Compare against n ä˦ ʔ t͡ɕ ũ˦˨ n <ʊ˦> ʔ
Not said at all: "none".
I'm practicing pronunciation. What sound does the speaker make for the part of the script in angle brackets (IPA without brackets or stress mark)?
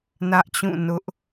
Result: ʊ˦